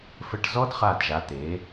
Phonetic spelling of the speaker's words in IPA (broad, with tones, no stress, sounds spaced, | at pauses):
f ə˧˩ ʈ z ɔ˦˥ d χ a˧˩ d ʒ a˩˧ t̪ e˩˧